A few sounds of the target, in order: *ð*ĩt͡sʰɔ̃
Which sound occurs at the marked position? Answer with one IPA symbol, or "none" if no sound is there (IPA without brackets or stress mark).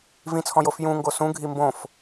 v